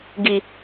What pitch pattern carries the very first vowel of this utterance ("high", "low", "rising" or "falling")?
low